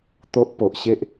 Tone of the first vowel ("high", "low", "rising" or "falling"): high